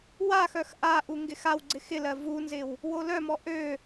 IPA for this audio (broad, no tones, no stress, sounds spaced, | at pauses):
w a x œ x ʔ a ʔ u ŋ ɡ ɪ x a w ɡ͡ǀ ɪ x ɪ l ɜ v u n z ɪ w | w o l œ m ɔ ʔ ø